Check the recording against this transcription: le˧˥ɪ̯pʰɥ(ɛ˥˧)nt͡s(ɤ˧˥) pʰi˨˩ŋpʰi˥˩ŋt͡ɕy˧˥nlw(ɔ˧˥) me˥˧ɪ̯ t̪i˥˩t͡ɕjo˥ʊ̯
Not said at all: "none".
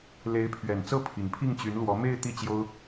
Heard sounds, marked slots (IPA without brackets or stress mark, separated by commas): ɛ˨˩, ɤ˥˩, ɔ˧˥